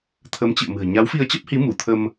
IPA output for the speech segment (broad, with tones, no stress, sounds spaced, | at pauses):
t̪ʰ ə˨˦ m t͡ɕ ɨ̰˧˨ ə̯ m ɨ̤˨˩ ə̯ ɲ a˨˦ w f i˧ ə̯ t͡ɕ ə˦˥ p̚ h i˨˦ m u˧˩ t̪ʰ ə˧ m